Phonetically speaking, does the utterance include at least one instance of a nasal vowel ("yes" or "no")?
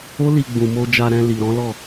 yes